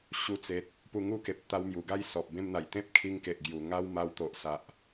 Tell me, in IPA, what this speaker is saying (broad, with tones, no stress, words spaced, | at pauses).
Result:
ɕu˧ t͡se˨t̚ | pu˧ŋu˥˧ke˨p̚ t̪a˧wmju˨˩ɡa˥˧j sɔ˨p̚bẽ˦mn̪a˨˩j t̪ẽ˦p̚kʰi˧ŋ ke˨ʔɡju˨˩ ŋa˦w ma˧wt̪o˨ʔ sa˨ʔ